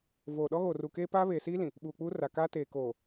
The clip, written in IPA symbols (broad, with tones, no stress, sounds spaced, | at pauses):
v oː˨ ɗ ɔ˦ ɣ oː˨ r uː˨ k eː˦ p aː˦ β eː˨ s iː˦ l ĩ˨ | ɓ uː˨ k͡p uː˦ r a˨ k aː˦ t eː˨ k oː˨